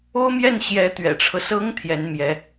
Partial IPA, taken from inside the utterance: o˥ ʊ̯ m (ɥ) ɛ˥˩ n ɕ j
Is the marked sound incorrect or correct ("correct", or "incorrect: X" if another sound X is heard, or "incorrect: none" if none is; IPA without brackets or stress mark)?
incorrect: j